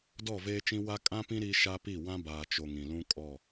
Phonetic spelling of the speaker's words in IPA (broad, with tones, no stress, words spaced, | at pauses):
dɔ˦˨veː˦t͡ʃĩ˦ wa˦ kʼã˦pĩ˦ ɾi˦ ʃa˦pi˦˨ wã˦baː˨t͡ʃo˨ ŋĩ˨lũ˦kʼɔ˦˨